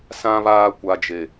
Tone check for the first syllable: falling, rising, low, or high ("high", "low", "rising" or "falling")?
high